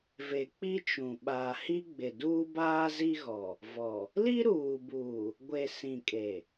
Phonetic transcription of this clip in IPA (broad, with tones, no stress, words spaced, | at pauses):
ve˨k͡pi˦t͡ʃũ˨ ɓaː˨hi˦ɡ͡bɪ˨ duː˦baː˦zi˦ɣɔ˨ | vɔ˨ | li˦ɾuː˨buː˨ | ɡʷe˨ sĩ˨kʼe˨